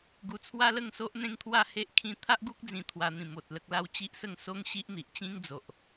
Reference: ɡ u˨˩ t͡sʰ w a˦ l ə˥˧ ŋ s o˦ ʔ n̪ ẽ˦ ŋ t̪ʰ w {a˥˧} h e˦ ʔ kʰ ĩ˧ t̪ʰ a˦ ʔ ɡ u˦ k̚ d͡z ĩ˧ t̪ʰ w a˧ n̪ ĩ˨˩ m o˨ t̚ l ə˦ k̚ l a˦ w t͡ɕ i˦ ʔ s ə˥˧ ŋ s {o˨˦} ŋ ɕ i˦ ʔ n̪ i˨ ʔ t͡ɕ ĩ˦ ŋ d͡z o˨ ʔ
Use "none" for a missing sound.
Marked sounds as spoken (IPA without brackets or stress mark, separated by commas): a˥˧, o˦